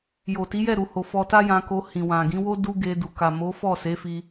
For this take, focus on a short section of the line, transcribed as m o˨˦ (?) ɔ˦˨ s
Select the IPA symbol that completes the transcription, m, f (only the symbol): f